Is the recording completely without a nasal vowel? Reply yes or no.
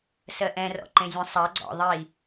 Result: no